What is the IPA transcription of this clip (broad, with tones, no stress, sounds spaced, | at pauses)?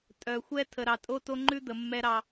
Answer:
tʼ œ˨ xʷ ɛ˦ tʰ ə˨ ɾ ɑ˨ tʼ o˦ t o˦ ŋ͡ǃ ʉ˦ d̪ ə˨ mː ɛ˦ ɾ ɑ˦